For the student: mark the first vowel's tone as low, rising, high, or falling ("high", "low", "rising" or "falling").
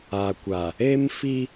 low